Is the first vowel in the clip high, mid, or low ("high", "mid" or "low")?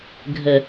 mid